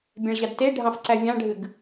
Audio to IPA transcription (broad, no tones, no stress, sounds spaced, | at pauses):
bʲ æ̃ ɭ ʑ ɑ d t e ɖʱ ɑ̃ f ǀ æ vʲ ɑ̃ ɖʱ ɨ ɡ